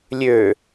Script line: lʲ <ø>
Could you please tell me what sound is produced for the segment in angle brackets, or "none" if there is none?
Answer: ø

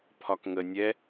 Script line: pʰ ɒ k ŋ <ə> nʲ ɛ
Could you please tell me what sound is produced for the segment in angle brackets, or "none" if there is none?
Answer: ə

